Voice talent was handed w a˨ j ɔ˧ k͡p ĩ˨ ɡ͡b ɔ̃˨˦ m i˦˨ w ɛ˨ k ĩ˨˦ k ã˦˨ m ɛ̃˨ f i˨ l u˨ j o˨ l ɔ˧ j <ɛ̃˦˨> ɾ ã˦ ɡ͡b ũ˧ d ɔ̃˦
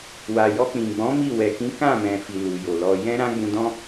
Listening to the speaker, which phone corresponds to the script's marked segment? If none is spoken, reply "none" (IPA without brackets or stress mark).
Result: ɛ̃˦